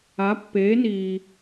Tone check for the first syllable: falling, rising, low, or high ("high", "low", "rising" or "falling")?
rising